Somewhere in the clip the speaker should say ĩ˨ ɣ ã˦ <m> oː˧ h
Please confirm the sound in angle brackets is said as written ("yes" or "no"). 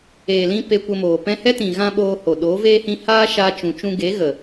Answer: no